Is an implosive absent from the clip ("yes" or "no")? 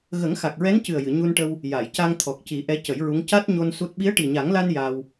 no